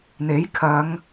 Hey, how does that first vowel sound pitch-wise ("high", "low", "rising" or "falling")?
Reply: rising